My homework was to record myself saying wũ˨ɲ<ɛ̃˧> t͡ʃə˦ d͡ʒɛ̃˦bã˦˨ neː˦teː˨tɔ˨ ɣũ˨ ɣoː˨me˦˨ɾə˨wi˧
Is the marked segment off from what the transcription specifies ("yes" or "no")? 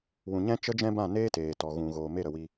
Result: yes